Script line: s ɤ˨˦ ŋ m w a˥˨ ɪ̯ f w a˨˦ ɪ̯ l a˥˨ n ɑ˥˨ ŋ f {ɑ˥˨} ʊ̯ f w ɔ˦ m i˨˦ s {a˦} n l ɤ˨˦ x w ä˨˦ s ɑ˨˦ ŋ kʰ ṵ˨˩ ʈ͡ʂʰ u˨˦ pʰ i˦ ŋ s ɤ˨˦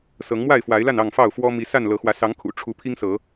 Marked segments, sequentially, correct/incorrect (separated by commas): correct, incorrect